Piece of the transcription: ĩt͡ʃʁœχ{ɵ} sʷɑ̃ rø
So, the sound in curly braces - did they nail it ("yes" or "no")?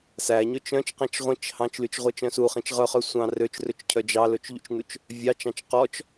no